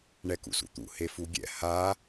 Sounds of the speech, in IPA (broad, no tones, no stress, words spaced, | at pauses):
ɳɛkṵsṵt̪ṵ hefuɡʲɛ̰ ha